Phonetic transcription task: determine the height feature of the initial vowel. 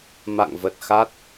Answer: low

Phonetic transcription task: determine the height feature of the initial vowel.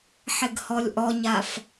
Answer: high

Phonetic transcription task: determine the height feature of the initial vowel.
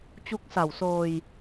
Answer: high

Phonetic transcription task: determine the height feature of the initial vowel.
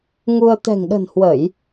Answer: high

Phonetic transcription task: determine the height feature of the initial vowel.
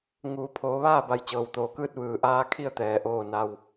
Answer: high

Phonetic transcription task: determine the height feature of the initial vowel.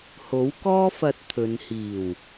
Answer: mid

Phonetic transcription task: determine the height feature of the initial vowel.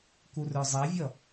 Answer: high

